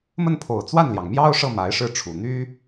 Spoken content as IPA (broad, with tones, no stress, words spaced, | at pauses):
mə˥˩npʰo˨˩ʊ̯ t͡swa˥˩nljɑ˩ŋmjɑ˥ʊ̯ʂɤ˥˩ ma˧˥ɪ̯ʂɻ̩˥˩ʈ͡ʂʰu˨˩ n̪y˥